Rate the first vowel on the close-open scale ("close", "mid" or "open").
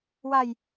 open